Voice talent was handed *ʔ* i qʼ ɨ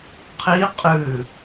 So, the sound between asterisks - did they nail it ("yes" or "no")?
no